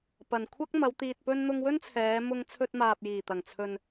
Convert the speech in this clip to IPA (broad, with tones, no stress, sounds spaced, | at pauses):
p ɐ˨˩ n kʷʰ ɐ˥ k̚ m ɐ˨˧ w t̪ iː˨ t̚ p ɵ˧ n n̪ ʊ˧ ŋ w ɵ˥ n t͡sʰ ɛː˨˧ m ʊ˧ ŋ t͡sʰ ɵ˧ t̚ m aː˨ p̚ j iː˨˩ t̪ ɐ˨˩ ŋ t͡sʰ ɵ˨ n